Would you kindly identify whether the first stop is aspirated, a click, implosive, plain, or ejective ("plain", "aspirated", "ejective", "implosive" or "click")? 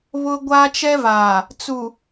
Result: plain